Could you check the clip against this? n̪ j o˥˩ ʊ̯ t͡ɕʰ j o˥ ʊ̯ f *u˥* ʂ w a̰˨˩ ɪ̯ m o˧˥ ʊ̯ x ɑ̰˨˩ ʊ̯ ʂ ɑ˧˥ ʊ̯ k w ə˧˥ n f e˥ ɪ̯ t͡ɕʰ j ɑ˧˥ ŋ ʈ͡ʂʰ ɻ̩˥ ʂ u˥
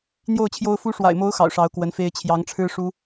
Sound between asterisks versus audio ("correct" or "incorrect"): incorrect